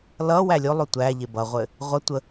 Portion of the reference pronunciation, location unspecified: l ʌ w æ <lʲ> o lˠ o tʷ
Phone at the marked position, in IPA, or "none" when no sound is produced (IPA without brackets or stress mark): lʲ